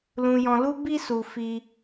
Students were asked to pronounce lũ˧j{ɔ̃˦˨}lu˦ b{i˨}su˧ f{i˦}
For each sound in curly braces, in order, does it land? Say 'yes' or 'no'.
no, no, yes

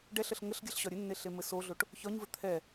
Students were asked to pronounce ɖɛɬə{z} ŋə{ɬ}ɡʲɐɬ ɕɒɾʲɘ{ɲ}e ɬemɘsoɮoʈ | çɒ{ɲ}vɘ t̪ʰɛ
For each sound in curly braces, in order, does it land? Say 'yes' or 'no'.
no, yes, no, yes

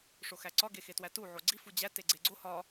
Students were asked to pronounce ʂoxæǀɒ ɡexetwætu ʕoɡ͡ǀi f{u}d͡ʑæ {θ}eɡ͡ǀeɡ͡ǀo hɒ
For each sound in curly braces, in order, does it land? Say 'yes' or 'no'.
yes, no

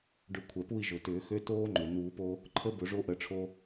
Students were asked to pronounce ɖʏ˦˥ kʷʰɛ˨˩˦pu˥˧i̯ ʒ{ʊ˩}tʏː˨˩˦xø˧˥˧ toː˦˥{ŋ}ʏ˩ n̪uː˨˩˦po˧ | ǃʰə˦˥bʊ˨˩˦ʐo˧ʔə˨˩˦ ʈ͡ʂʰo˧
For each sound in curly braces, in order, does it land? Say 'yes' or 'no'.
yes, no

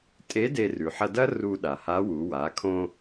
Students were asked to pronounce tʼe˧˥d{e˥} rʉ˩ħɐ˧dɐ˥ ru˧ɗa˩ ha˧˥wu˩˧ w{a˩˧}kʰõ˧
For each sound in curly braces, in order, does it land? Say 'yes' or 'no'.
no, yes

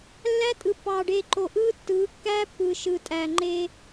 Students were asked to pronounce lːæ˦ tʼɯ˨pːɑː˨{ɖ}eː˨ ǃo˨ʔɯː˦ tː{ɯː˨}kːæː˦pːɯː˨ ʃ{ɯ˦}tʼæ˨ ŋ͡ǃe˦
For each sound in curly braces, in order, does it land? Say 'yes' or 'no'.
yes, no, no

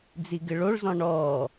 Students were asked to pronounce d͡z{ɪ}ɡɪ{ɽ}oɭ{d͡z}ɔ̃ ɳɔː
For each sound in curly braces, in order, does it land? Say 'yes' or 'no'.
no, no, no

